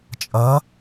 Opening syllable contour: rising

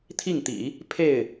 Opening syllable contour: falling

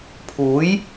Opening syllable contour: rising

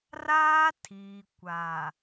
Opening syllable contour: high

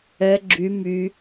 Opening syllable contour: low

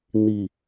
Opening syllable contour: low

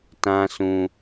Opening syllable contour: high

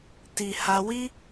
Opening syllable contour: low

